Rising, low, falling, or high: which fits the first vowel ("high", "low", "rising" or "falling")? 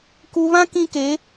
low